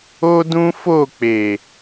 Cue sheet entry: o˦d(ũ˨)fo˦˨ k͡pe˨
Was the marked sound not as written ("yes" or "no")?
yes